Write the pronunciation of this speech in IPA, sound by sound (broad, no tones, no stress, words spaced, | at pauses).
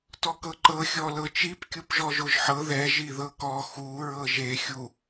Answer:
tɔkɤǃɤ xʲɔlɤt͡ʃip kʲupʒɔʒoʒħɤ ðɛ ʒiðɤkɔ xu ɹɤʒe xʲu